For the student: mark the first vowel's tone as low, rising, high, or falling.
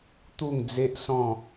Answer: falling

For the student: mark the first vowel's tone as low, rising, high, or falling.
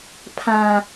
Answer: high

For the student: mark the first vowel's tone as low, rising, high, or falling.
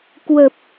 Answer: low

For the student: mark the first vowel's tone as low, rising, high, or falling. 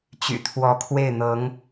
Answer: low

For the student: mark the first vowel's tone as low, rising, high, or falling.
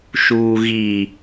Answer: low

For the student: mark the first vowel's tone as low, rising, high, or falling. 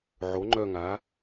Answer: rising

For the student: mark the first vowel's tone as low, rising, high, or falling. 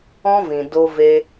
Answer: high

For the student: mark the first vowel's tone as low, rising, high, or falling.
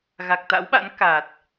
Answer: low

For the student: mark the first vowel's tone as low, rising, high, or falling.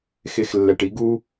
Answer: low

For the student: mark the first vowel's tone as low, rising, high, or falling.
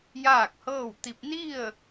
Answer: falling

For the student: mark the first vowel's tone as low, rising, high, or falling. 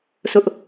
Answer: high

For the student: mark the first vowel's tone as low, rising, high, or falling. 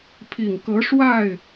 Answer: low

